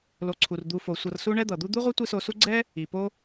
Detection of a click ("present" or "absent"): present